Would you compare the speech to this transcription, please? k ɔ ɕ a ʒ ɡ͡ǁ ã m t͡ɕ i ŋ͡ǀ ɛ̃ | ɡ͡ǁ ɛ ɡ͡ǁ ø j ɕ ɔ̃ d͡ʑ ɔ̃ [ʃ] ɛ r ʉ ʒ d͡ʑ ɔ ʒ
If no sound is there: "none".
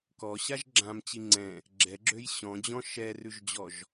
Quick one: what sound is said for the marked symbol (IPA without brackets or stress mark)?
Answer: ʃ